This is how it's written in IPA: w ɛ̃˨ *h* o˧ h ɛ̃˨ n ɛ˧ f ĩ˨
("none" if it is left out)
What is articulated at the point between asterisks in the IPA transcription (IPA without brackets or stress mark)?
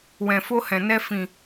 f